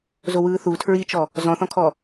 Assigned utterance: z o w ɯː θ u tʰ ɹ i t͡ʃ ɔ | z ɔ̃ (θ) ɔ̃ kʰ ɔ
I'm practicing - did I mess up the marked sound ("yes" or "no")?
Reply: no